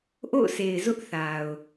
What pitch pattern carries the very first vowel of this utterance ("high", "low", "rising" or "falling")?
falling